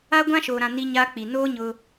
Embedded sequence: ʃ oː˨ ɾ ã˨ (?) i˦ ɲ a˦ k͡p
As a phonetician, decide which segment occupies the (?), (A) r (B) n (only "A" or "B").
B